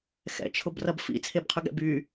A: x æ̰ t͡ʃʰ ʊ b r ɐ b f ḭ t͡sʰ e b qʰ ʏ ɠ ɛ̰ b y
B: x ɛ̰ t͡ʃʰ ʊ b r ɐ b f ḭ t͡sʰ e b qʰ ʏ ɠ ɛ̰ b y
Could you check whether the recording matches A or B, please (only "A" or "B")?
B